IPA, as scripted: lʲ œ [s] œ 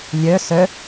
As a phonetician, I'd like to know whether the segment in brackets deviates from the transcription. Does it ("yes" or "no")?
no